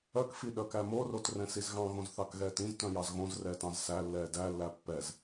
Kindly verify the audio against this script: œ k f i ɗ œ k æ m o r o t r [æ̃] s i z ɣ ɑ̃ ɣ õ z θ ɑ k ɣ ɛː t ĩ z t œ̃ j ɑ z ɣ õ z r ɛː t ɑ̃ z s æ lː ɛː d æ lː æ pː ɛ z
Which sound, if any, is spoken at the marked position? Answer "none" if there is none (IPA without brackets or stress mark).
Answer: ɛ̃